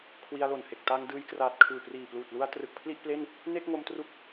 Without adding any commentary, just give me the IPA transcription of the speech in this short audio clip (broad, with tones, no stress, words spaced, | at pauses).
kʰwi˧a̯lo˨˩nhe˨˩k̚ ta˧ŋdɯː˧jkraː˨˩t̚ kʰɯː˨˩priː˨˩pluː˨˩t̚lu˧a̯ trɯ˨˩k̚pʰli˥˩ʔple˥˩n | ne˥˩k̚ŋo˧mtru˦˥k̚